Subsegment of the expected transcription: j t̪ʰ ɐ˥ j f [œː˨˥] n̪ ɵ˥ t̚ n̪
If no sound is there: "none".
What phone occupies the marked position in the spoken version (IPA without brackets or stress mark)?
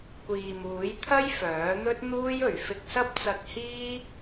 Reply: œː˨˥